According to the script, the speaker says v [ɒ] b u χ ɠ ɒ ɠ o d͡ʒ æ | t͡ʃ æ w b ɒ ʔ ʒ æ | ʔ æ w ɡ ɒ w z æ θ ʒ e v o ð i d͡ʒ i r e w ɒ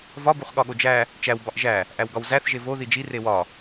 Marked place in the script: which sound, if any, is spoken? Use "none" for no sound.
ɒ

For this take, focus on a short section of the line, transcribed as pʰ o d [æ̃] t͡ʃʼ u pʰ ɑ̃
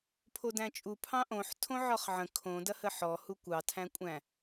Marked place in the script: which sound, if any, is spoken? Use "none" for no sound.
æ̃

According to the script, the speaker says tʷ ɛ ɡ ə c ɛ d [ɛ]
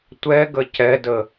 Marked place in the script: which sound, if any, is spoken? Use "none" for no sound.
ə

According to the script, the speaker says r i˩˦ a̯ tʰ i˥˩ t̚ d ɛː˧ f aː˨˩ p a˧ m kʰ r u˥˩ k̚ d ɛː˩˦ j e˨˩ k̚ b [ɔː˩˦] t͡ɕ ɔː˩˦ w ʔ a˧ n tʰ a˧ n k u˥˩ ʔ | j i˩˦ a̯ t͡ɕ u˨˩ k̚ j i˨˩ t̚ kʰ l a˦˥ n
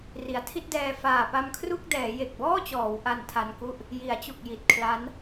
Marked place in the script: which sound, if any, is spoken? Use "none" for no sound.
ɔː˥˩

